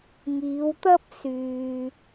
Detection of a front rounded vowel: present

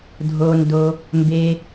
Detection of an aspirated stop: absent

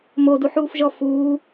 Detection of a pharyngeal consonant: present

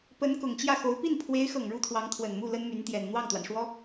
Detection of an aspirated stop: present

